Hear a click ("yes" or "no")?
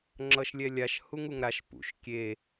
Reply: yes